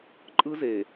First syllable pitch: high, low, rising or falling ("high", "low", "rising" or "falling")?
high